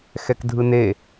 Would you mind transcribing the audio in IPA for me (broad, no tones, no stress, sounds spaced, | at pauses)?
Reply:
x ɛ k dʱ ɯ n e